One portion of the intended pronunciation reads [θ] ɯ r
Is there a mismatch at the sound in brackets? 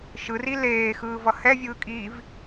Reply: yes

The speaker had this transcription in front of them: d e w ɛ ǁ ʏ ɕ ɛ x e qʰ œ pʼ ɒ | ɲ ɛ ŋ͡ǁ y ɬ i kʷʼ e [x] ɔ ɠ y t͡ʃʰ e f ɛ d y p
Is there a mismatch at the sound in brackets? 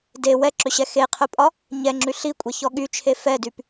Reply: yes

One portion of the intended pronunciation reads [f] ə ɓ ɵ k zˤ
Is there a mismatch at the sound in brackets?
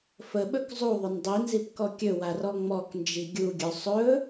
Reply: no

